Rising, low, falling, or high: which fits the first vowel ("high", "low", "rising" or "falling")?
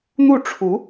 falling